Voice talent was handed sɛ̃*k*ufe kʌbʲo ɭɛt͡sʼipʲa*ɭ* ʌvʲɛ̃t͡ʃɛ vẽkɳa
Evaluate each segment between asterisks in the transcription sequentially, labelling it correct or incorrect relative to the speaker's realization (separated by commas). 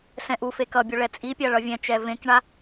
incorrect, correct